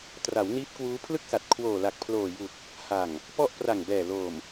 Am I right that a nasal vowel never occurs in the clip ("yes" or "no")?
yes